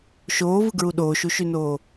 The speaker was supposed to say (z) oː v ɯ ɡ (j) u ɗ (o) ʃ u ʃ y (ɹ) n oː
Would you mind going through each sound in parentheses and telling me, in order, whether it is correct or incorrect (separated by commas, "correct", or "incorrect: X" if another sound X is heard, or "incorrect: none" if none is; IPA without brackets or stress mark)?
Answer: incorrect: ʃ, incorrect: ɹ, incorrect: oː, incorrect: none